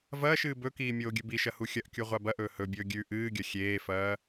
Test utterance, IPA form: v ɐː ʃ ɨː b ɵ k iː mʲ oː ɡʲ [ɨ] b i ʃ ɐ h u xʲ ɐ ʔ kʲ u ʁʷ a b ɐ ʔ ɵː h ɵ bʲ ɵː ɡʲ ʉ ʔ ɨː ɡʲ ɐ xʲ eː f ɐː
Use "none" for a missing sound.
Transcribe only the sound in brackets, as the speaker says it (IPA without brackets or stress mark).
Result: ɨ